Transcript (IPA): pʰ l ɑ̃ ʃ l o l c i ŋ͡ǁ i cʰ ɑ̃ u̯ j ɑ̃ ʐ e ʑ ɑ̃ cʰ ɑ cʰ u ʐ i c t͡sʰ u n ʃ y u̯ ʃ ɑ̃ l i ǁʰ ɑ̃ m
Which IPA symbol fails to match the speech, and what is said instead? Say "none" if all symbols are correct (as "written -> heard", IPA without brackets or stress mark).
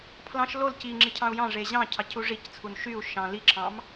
none